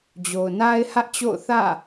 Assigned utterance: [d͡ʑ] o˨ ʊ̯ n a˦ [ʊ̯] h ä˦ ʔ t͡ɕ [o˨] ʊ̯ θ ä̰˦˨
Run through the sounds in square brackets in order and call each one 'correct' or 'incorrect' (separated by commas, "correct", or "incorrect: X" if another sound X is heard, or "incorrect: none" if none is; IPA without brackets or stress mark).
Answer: correct, incorrect: ɪ̯, incorrect: o̰˦˨